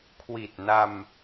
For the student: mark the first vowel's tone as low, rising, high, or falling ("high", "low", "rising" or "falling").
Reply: low